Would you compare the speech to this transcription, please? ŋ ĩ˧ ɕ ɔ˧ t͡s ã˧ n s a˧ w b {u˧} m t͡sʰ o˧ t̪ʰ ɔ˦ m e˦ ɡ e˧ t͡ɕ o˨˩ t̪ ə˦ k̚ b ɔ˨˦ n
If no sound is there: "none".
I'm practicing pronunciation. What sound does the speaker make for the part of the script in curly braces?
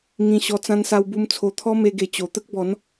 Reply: u˧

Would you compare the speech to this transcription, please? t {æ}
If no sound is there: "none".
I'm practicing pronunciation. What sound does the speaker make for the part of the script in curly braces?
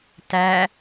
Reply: æ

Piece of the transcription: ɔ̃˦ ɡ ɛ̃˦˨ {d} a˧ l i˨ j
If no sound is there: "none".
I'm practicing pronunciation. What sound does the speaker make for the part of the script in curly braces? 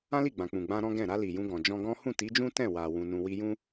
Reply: ɾ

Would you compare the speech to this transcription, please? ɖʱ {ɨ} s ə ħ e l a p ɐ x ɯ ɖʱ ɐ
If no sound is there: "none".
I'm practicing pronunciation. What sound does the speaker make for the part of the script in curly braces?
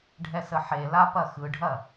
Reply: ɛ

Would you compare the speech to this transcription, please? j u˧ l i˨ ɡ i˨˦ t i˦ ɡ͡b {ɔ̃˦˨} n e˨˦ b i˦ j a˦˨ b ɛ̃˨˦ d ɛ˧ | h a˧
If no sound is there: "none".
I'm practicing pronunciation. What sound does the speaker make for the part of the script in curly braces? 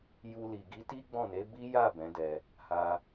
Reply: ɔ̃˦˨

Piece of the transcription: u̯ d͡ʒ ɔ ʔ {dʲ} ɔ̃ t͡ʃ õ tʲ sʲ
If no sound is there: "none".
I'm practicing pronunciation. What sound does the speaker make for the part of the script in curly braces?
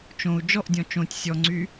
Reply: dʲ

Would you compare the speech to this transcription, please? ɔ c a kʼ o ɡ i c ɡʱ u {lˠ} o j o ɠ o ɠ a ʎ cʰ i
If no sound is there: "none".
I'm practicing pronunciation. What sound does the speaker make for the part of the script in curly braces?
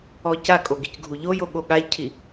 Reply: ʎ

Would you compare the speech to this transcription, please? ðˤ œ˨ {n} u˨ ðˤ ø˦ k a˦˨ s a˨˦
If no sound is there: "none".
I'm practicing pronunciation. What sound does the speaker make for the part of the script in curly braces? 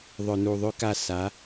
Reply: n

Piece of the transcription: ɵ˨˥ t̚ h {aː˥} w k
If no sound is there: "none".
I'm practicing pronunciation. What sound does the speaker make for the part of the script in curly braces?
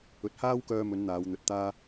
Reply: aː˥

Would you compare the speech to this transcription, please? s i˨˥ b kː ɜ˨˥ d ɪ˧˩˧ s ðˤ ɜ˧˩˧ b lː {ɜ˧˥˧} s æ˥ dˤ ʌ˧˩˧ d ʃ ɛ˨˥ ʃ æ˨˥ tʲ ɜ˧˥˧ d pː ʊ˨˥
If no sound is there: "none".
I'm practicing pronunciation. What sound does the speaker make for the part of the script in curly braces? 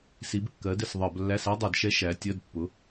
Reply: æ˧˥˧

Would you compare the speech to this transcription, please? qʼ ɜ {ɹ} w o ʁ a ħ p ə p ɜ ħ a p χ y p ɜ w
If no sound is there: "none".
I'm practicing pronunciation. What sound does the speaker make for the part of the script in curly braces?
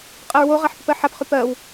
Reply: ɹ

